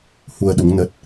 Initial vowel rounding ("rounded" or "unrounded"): rounded